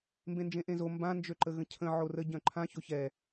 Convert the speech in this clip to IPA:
m b ẽ n d͡ʒ ẽ ʔ ẽ z o m b ã n d͡ʒ ø ǃ ə ɣ ə̃ cʰ ə̃ ʕ o r ə ɟ œ̃ ǃʰ ã ç o ç ɛ

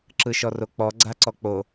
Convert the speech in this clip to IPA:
ǁ ɯ ʃ ɔ r o k͡p ɔ ɡ͡ǀ a ǀ ɔ k͡p o

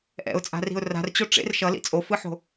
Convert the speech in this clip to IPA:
ʔ ɛ̰ ʊ̯ t͡sʼ a̤ r i̤ ʊ̯ r a̤ r t͡ɕ o ʈ͡ʂ ḛ r ʃ ʌ l ḭ t͡sʼ o f ɯ ħ o̤

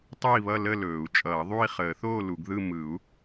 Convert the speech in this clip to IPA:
tˤ ɯ˥˨ i̯ β ʌ˥˨ l ə˥˨ l ɵː˨˩˦ u̯ t͡ʃʼ ʌː˨˩˦ ðˤ u˥˨ i̯ χ əː˨˩˦ θ oː˥˨ l u˨˩˦ ɡ ð ɯ˥˨ m ɯ˨˩˦ u̯

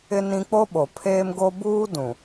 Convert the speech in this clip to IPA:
ɪ˦ n ĩ˦ k͡p o˦ ɓ o˨ pʰ eː˦ m ɡ o˦ b uː˦ d ũ˨

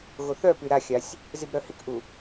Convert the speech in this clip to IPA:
ɣ o θ œ p y ɾ a xʲ a sʲ | z i b ɾ œ h i k ʔ u

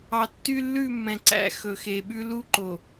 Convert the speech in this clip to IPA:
ɑ˨ tː y˦ lː ʉ˦˨ mː ɛ̃˨ ǀ æ̰˦ x ɵ˨ x e˨ ɓ ʉ˦ l u˦ ǃ o˨

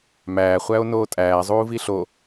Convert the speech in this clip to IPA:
m æː χʷ æ o̯ n oː tʼ æː zˤ uː v i ɬ o

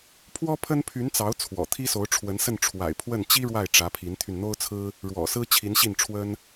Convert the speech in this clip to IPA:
pʰ w ɔ˥ pʰ ə˥ n pʰ y˧˥ n t͡s ɑ˧˥ ʊ̯ t͡sʰ w ɔ̰˨˩ t̪ʰ i˥ s o˧˥ ʊ̯ ʈ͡ʂʰ w ə˧˥ n s ə˥˩ n ʈ͡ʂʰ w a̰˨˩ ɪ̯ pʰ w ə˥˩ n t͡ɕ i˥ ɻ w a˥˩ ɪ̯ ʈ͡ʂ ä˧˥ pʰ i˧˥ n t̪ʰ y˧ n n̪ o˥ ʊ̯ t͡sʰ ɹ̩˥ | ɻ w ɔ̰˨˩ s ɹ̩˥ t͡ɕʰ i˧˥ n ɕ i˥˩ n ʈ͡ʂʰ w ə˥ n

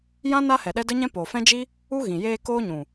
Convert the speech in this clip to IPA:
j ã˦ n a˦ h ɛ˨ ɗ ɛ˦ d ə˦ ɲ ɛ̃˦ p oː˨ f ɛ̃˦ d͡ʒ i˦ | u˦ ɣ ĩ˨ j eː˧ k oː˦ ɲ ũ˨

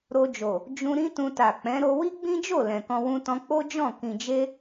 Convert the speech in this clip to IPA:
ɾ o˧ d͡ʒ o˨ | d͡ʒ ũ˧ ɾ ĩ˦ t ũ˧ t a˨ k͡p ɛ̃˨˦ ɾ o˧ w i˦ ɡ͡b ĩ˦ d͡ʒ o˦˨ l ɛ̃˨ k ɔ̃˧ w ũ˧ t ɔ̃˧ k͡p o˦ d͡ʒ ɔ̃˦˨ k ĩ˨ d͡ʒ e˧

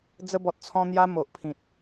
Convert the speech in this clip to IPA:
d͡z ə˧ b ɔ˨ t̚ t͡sʰ ɔ̃˧ n̪ j a˧ m o˨ ʔ pʰ ĩ˨ t̚

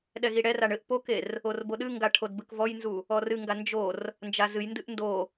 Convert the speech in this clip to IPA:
ɗ ɛ ɣ i ɽ ɛ r a ɳ ɘ ʔ p o k e r | o r b o ɗ ɨ ŋ ɡ a ʈʰ o d b ɨ k v ɔ j n z u | ɔ r ɨ ŋ ɡ a n d͡ʒ o r | n d͡ʒ a z ɨ j n d ɨ ʔ n d o

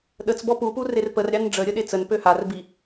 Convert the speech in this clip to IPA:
ɗ ə t͡s b ɔ p u p u r e r p ə r ɾʲ ɑ n ɖ͡ʐ ə ɾʲ ə ɗ e t͡s ə n p ø h a r b i

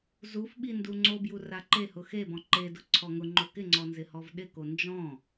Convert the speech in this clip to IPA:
z u f ɓ i n d u ŋ͡ǀ o b j u r a ǃ e h ʊ x e b ɔ̃ ǃ e d ʊ ǀʰ ɔ ŋ ʊ ŋ͡ǃ o k ɪ ŋ͡ǀ ɔ n z ɪ h ɔ v ɗ ɪ k o n d͡ʒ ɔ̃

